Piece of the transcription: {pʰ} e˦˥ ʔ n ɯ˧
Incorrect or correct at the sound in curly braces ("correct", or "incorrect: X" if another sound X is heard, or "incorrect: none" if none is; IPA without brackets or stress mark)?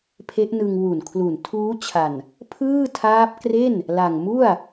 correct